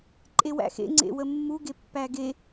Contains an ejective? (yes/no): yes